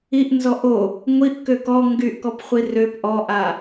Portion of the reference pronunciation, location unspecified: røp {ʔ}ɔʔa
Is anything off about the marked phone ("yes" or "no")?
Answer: no